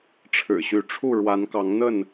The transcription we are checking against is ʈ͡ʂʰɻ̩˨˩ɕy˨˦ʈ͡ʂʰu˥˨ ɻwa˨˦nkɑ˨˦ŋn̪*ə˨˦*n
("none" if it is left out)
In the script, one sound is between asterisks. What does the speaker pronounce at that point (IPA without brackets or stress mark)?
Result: ə˥˨